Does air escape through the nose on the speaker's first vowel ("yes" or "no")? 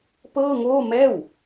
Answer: no